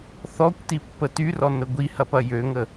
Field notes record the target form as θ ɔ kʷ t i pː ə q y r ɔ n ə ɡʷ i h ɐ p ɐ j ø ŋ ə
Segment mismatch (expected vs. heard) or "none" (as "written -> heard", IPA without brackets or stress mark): q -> t